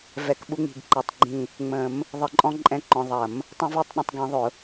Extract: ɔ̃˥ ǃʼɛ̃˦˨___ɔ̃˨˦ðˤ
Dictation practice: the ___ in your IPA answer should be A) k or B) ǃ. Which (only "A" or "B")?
B